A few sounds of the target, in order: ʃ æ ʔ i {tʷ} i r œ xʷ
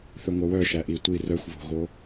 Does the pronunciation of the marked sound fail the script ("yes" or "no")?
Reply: no